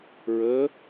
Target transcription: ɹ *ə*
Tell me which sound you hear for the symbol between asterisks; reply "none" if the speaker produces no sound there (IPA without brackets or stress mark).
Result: ə